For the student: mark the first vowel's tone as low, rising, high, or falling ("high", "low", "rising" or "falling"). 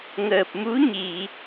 low